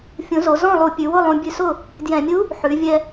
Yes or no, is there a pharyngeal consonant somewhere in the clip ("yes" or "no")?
yes